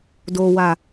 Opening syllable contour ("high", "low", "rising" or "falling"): low